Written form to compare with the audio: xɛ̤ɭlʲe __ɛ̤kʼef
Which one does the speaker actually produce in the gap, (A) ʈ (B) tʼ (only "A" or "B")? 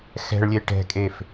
A